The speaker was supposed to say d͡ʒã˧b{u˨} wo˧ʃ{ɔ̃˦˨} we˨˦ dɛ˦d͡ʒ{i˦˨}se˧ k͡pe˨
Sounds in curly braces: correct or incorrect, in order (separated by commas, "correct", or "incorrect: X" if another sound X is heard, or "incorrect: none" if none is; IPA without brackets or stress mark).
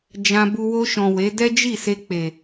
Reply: incorrect: u˧, incorrect: ɔ̃˨, correct